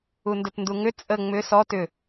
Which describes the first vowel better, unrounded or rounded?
rounded